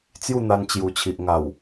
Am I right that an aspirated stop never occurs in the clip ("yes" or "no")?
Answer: no